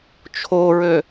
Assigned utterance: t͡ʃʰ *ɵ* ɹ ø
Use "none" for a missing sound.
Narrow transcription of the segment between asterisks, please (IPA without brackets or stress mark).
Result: o